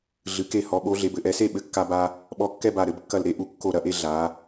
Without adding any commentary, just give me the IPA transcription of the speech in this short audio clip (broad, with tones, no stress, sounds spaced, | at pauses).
ɮ ɨ˩˧ k e˧˩ h ɔ˩˧ ɓ o˩˧ ɮ e˩˧ b ɘ˩˧ ʔ ɛ˩˧ s e˥˧ ɓ ɘ˧˩ kː a˧ b a˧ | ɓ ɔ˧ kː ɛ˥˧ b a˧˩ ɾ ɘ˩˧ b kː ɐ˧˩ l ɾ e˥˧ ʔ u˧˩ kː o˧˩ ɾ ɐ˧ ʔ e˧ ɮ a˩˧